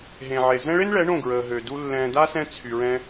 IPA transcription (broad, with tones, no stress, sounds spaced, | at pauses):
ɦ ẽ˨ ʕ e˨ z ɛ̃˦ ɭ e˦ n ɭ ɛ˨˦ ɳ õ˦˨ ɡ ɹ əː˨ ɦ ø˨ d u˦ lː ɛ̃ː˧ d a˦ s ɛ̃˧ t͡sʰ y˨ ɹ ɛ̃˧